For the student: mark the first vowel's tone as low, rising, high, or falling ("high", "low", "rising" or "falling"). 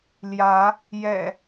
rising